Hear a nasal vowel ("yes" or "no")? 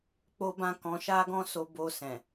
yes